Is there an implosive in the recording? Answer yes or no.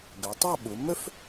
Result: yes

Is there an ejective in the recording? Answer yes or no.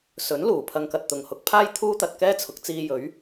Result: no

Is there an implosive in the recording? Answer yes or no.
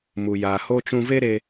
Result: no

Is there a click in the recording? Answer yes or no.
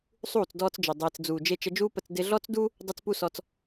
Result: no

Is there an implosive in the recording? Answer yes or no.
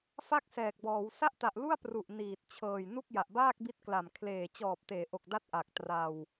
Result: no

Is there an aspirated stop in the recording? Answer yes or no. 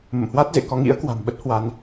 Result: no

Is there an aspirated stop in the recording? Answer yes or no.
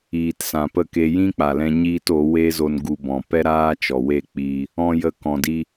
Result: no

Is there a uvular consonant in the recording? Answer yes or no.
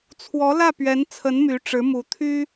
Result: no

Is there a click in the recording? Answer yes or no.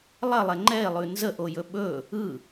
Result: yes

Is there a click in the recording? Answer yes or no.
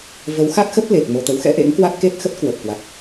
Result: no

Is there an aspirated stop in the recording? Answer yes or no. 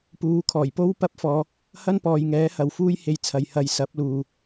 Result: yes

